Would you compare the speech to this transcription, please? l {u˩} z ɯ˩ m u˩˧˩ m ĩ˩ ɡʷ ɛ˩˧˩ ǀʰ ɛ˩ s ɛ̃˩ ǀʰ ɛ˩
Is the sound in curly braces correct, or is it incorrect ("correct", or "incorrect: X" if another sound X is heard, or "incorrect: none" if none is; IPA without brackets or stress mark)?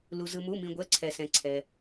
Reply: correct